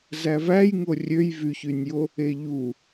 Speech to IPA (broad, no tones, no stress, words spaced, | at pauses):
zævæjŋo rʲøj vyçynʲjo | eʎu